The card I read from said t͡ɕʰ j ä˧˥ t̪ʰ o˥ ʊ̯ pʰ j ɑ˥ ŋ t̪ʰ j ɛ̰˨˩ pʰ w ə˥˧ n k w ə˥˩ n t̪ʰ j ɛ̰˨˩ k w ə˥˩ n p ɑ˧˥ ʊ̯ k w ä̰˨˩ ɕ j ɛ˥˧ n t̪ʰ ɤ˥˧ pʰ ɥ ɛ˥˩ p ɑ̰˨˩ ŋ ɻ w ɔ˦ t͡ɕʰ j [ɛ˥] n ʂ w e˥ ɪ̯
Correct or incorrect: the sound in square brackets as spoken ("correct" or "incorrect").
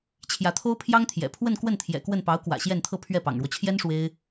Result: correct